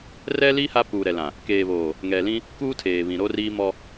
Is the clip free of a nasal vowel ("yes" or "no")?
no